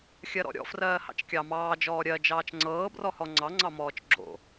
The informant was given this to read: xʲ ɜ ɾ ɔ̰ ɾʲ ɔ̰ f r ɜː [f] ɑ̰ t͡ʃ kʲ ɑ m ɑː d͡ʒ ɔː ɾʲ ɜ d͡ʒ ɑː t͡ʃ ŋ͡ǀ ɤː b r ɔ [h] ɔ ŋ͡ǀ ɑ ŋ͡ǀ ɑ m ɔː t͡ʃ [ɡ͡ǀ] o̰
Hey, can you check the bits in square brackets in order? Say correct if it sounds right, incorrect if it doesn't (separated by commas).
incorrect, correct, incorrect